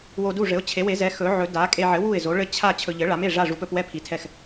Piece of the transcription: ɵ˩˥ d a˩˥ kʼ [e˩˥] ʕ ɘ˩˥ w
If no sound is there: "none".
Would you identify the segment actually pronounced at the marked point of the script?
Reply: e˧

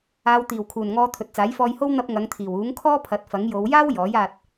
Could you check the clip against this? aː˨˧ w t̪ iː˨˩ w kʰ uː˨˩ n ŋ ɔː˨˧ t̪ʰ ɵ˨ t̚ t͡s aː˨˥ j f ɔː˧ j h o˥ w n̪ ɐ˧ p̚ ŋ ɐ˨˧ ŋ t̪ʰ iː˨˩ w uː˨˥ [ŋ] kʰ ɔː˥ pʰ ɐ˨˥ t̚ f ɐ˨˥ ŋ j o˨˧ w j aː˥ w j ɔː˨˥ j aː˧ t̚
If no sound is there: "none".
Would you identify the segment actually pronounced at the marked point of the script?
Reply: ŋ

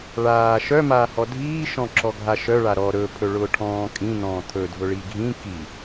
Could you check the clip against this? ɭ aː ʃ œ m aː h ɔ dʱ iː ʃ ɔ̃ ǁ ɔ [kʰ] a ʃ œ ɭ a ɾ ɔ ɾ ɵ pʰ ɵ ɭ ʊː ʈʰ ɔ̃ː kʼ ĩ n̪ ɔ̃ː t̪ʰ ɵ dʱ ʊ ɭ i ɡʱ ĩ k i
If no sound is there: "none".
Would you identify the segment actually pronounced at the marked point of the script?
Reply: ɡʱ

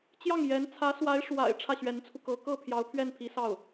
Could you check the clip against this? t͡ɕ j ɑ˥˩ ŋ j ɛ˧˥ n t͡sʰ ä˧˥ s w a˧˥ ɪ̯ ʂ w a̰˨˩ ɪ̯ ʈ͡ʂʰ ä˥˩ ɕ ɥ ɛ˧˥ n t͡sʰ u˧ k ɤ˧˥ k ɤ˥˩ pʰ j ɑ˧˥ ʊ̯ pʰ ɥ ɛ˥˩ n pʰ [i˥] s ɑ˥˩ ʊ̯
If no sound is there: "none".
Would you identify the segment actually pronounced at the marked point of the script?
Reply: i˧˥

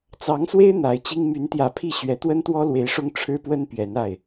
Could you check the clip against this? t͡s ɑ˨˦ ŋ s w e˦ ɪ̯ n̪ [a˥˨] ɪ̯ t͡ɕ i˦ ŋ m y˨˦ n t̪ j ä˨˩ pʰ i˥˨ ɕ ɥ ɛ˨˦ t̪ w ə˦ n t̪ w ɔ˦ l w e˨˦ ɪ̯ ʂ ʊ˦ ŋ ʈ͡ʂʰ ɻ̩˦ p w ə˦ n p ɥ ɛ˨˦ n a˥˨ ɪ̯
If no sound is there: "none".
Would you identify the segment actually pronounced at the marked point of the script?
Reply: a˨˦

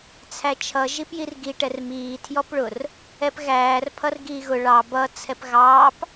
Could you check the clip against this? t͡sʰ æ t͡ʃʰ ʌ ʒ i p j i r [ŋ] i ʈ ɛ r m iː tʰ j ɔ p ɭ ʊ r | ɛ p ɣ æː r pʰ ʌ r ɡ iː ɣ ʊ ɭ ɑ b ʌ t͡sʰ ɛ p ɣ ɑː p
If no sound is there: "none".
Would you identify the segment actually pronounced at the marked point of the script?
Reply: ɡ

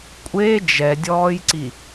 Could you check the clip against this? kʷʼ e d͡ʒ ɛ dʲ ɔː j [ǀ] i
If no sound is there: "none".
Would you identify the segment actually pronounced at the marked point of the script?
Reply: ǀ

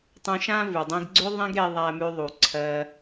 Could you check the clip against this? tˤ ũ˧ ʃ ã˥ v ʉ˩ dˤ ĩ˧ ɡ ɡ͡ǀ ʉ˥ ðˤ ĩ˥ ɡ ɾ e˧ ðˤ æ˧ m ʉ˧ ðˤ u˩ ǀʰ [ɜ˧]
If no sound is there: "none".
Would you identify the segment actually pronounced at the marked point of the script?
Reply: ɜ˧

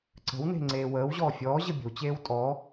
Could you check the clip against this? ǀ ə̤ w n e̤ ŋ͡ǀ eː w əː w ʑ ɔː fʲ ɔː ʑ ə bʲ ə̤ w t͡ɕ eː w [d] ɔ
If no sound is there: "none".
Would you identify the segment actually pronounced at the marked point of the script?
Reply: tʼ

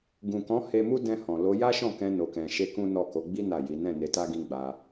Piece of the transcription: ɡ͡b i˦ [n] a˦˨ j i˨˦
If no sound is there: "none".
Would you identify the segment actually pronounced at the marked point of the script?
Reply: n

